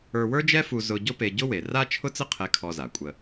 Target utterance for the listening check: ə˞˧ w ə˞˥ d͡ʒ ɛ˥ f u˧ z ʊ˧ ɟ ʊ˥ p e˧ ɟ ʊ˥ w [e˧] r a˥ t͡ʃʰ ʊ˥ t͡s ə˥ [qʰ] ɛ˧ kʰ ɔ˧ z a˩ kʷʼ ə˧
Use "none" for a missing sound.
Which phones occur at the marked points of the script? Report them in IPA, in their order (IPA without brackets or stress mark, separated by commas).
e˩, qʰ